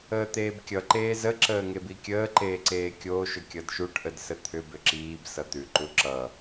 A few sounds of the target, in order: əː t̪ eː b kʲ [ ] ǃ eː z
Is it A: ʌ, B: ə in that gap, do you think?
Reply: A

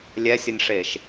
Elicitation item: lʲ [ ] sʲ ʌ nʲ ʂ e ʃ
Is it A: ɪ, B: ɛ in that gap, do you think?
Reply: B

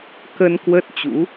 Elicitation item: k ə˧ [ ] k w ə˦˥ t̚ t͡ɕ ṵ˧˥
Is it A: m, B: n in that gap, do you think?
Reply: B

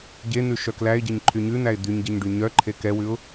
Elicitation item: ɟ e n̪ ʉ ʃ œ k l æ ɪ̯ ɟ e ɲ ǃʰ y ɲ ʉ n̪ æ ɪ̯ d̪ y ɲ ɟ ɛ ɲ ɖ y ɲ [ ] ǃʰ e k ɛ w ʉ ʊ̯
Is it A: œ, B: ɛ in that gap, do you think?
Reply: A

